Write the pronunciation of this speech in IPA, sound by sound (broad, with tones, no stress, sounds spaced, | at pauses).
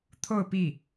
t̪ʰ o˥˧ ʊ̯ p i˥˩